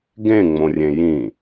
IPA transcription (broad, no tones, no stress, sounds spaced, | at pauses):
ɡ ẽ ŋ͡m õ rʲ ẽ j ĩ